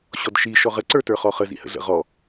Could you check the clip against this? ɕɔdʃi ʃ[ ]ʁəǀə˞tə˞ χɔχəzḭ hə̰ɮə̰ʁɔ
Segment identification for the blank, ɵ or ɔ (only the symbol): ɔ